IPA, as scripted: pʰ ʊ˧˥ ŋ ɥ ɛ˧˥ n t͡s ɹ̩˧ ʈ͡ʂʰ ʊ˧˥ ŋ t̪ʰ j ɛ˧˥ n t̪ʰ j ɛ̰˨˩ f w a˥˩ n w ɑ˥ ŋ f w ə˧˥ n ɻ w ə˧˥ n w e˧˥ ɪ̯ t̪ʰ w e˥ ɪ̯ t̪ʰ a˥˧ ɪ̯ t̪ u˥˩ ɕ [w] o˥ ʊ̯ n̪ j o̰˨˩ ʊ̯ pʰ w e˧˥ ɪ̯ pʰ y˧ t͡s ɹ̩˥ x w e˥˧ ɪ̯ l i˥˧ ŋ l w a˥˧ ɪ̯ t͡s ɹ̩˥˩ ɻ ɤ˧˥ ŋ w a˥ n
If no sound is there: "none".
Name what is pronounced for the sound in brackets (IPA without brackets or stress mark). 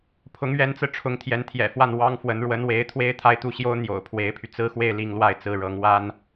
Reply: j